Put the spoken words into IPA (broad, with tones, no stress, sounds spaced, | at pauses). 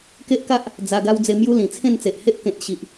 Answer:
k e˦ ʔ k a˦ ʔ | d͡z a˧ ɡ a˦ w d͡z e˧ m j u˦ l ĩ˨˩ t͡sʰ ẽ˥˧ n t͡s e˨ ʔ h e˦ ʔ k ẽ˨ t̚ ɕ i˨ ʔ